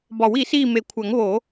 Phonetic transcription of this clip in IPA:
bɒ˨˩˦wi˨˩˦ siː˦˨me˨˩˦ kʷʰæ˨˩˦ŋβo˨˩˦

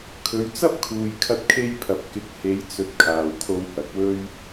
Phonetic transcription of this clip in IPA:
kʰɵ˨˧ɥt͡sɐ˥p̚ kʰuː˨jkʰɐ˧t̚kʰe˧jpʰɐ˨p̚ kɪ˨˥k̚he˨˧jt͡sɵ˨t̚ kʰaː˨wkʰo˧whɐ˨k̚wɵ˥ɥ

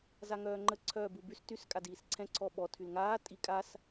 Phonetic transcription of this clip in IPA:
zaŋœːŋ͡ǃə ǀʰœːbubys tys kʼadiːsǀʰɛ̃ ǀʰɔɓɔ tʰylŋaː tʼikʼas

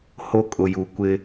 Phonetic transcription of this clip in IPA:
ho˦kʼʊ˨ju˨kʷɪ˦

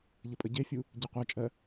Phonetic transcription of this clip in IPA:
ʎəpʼəɟefʲu | ɟeqʷɜt͡ʃʼɜ

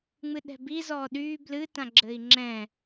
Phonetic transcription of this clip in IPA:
ŋ͡mɨɗɛ̤bi zɔːɗyː blɨ tãɡ͡ǁɘi̯ŋ͡ǁɛ̃

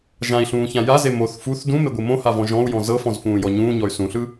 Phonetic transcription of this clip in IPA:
ʒãi̯ɬũːçã jaze moθ fuθ dũmeɡʷɯ mõhavɔ̃ ʒɔ̃u̯jɔ̃ zɤfɔ̃zfũːjɔ ɲũːɲɔy̯ sũɬɯ

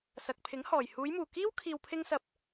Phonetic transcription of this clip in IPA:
sɐ˨k̚pʰɪ˨˥ŋhɔː˨˩j huː˨˧jmuː˨˩kiː˥w kʰiː˨wpʰɪ˧ŋsɐ˨˥p̚

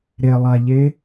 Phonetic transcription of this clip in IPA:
ɾelˠaʎe

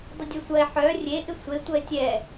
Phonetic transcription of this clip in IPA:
dˤɪdʲœsʷɐe̯ ħœ rʲe ʔɪsʷe tʷɐe̯tʲɛ

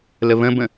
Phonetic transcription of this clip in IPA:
ləβə̃bə̃

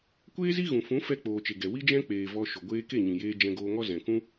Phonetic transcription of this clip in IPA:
kʷeː˦zi˦ ɣũ˨fũ˨˦ fɛ˧ k͡poː˨t͡ʃe˨ɡɛ˨ wi˦d͡ʒɛ̃˦ k͡peː˨ vɔ˧ ʃo˨ɡʷeː˦ ke˦˨ɲĩ˨jeː˧ d͡ʒɛ̃˧ɡoː˧ŋɔ˦ zɛ̃˨kũ˦

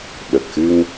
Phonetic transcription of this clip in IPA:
ɓə˨˩k̚xɨ˧ŋ

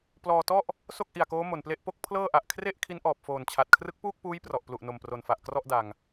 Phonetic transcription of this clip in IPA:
plɔː˧tɔ˥˩ʔ | so˥˩k̚ʔi˨˩a̯koː˦˥ mo˨˩nple˥˩ʔ po˥˩k̚ pʰlɤː˥˩ʔa˨˩ʔ kʰre˥˩ʔ kʰi˦˥nʔɔː˨˩p̚foː˨˩nt͡ɕʰa˨˩t̚ kʰrɯ˦˥k̚puː˥˩k̚puː˦˥j prɔ˨˩ʔplu˨˩ʔ no˨˩mpro˨˩nfa˨˩ʔ krɔ˥˩ʔda˨˩ŋ

